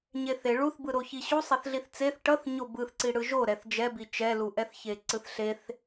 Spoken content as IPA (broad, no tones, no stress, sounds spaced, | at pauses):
ɲ e θ e ɭ u θ b ɯ ɾ o ç i ɕ u sˤ ɛ θ ɮ i θ t͡s e θ ʈ ʌ θ ɲ o b ɯ θ ǀ i ɽ ɯ ʒ o ɾ ɛ θ d͡ʒ ɛ b i t͡ʃ ɛ l u ʔ ɛ θ ç e ǀ ɯ θ ɬ e θ